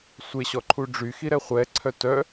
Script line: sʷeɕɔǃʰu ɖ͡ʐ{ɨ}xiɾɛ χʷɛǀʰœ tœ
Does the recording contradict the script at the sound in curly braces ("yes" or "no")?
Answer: yes